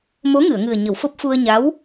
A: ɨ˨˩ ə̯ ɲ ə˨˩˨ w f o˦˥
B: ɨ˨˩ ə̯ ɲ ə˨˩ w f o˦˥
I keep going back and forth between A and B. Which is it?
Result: A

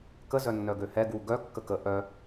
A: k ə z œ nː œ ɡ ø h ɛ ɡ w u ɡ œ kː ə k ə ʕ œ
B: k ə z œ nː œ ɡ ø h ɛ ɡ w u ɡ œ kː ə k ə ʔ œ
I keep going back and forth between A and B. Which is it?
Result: B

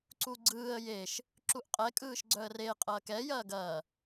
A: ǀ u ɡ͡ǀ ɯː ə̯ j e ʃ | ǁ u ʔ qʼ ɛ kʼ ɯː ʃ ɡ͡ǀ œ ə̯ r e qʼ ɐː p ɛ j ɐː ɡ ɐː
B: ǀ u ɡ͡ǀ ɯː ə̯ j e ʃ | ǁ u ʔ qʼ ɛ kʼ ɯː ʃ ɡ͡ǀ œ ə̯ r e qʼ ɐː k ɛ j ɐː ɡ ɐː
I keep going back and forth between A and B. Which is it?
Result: B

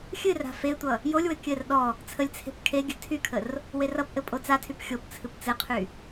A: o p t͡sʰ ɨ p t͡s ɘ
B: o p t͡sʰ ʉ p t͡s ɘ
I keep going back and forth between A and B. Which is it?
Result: A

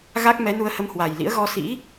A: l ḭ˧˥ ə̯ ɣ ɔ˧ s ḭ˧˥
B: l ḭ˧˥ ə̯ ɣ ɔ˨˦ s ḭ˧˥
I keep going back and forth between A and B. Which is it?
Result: A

